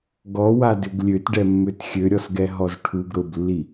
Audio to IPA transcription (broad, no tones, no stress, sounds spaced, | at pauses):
ɡ ɔ w a d ʏ ɡ lʲ ø t ɖ ɛ mː ø t xʲ ø ɾʲ ɔ s ɡ ɛ ɦ ɔ z ʈʰ u ɡ ɾ ʊ b lː i